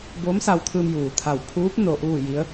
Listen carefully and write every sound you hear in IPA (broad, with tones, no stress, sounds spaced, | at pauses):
b oː˧˥ m s a˧ w t̪ʰ ɯː˧ m j uː˩ t̪ʰ a˧˩ w pʰ uː˧˥ p̚ n o˧ ʔ uː˥˨ j i˧˥ ə̯